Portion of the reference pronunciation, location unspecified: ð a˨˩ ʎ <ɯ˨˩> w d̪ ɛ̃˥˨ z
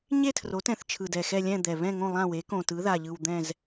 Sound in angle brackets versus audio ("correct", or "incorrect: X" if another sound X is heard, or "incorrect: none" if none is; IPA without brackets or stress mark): correct